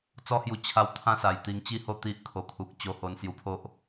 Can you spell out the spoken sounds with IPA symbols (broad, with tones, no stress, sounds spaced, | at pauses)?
t͡s ɔ˦ h j u˧ t͡ɕʰ a˧ w t̪ʰ ã˦ s a˨˩ j t̪ i˧ ŋ t͡ɕ i˥˧ h o˥˧ t̪ i˦ ʔ kʰ o˧ kʰ u˨ k̚ t͡ɕ o˧ h o˧ n s j u˧ pʰ o˦ ʔ